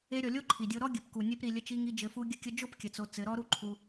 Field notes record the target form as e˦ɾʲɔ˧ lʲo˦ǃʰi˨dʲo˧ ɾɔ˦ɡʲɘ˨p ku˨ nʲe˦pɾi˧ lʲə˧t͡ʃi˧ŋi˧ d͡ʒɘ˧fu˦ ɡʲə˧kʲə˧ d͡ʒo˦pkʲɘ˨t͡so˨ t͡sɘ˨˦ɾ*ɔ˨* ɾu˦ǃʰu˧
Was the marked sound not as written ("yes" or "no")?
yes